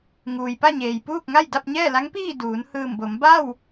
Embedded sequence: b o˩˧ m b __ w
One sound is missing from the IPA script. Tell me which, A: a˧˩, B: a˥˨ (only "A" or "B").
B